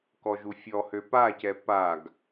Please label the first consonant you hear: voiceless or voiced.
voiceless